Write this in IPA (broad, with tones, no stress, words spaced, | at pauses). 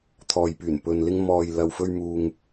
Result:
t̪ʰɔː˨j pyː˨˩n pɵ˨nlɪ˧ŋmɔː˨j lɐ˨wfɵ˧ɥmuː˨ŋ